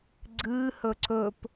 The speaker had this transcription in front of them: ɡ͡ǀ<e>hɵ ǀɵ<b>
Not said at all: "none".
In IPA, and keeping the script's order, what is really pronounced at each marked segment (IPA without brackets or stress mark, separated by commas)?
ɨ, p